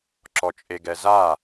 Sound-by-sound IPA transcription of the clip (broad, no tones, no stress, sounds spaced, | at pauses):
ǁ ɔ t͡ʃʼ e ɡ ɛ z a